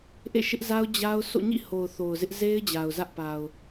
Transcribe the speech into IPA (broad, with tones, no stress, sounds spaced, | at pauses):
ʔ ḛ˦˨ ʃ ɪ˦ ʔ z a˦ ʊ̯ d͡ʑ a˦ ʊ̯ sʰ o̰˦˨ ɲ ḭ˦˨ h o˨ ʊ̯ θ o˨ ʊ̯ z ɪ˦ ʔ z e˦ ɪ̯ d͡ʑ a˨ ʊ̯ z ä˦ ʔ p a˨ ʊ̯